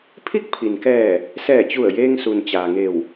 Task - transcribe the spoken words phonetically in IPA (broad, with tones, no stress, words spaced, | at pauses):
pʰi˥˨k̚pʰi˩nkɛː˧˩ | sɛː˧˩t͡ɕu˧˩ə̯jeː˧ŋ su˩nt͡ɕaː˩ŋe˧˩w